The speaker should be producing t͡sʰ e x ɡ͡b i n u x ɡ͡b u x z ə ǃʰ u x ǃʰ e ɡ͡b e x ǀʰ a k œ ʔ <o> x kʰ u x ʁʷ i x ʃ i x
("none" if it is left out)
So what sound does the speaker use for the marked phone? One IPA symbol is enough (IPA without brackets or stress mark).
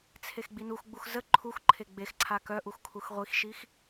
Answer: u